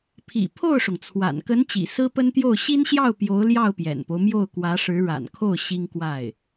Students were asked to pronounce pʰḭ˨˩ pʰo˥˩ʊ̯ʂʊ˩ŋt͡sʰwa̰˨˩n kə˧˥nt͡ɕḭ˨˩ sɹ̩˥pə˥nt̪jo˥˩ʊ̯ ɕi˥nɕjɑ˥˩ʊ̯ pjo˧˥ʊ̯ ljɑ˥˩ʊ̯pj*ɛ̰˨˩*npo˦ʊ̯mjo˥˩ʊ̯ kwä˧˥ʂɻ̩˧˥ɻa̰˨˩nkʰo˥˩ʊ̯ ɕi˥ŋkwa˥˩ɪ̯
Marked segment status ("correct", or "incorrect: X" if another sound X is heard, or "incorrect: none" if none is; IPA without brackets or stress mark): correct